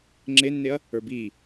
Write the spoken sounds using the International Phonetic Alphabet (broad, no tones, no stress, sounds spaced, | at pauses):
ŋ͡ǁ e nː e ɐ̯ | ə˞ b iː